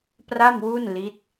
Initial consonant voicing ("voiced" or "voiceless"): voiceless